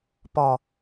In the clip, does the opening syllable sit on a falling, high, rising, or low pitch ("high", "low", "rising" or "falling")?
low